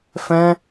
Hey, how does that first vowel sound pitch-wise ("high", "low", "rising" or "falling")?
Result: high